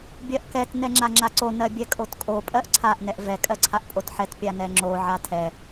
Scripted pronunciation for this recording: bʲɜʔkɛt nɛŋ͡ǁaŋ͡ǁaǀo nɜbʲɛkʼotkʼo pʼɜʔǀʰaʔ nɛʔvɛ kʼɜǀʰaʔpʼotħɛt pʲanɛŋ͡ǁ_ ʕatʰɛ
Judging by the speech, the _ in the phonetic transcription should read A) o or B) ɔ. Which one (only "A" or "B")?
A